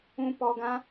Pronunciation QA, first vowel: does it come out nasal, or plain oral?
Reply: nasal